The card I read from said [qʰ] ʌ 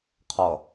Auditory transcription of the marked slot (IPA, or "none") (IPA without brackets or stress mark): qʰ